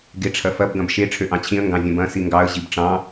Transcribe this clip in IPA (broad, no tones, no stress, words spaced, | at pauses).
ɡeʈ͡ʂʰɐfɐb ɡɐ̃bʃe ʈ͡ʂʰøʔɑ̃t͡ɕʰĩə̯ ŋɡɑ̃vʲɐ̃bɐ̃ siŋɡɑə̯ ʑibʈ͡ʂɑ̃